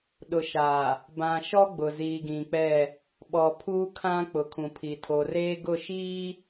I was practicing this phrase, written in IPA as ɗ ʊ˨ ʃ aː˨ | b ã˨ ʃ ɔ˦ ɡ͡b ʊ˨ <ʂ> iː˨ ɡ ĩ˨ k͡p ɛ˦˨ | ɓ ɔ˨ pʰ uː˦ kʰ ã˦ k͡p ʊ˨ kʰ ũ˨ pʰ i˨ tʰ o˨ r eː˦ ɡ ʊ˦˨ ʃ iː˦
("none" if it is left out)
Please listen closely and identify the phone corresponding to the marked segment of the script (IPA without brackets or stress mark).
z